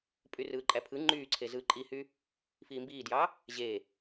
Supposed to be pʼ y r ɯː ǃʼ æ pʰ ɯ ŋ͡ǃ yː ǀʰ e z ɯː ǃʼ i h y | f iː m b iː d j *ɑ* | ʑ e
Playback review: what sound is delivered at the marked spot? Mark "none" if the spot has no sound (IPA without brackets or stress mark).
ɑ